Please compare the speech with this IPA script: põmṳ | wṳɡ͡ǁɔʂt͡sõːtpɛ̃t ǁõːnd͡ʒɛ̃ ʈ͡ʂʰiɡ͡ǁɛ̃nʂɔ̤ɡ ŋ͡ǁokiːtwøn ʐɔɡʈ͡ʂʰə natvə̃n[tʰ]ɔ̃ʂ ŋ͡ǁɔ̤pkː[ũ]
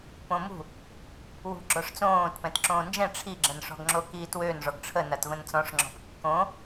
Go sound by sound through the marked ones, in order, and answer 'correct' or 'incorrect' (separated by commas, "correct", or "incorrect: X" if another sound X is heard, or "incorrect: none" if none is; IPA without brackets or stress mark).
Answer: incorrect: t͡s, incorrect: õ